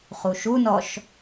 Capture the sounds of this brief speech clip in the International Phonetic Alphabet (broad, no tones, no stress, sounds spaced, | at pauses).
χ u ʃ u n ɔ ʃ